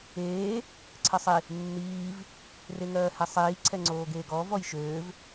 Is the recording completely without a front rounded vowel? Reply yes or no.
no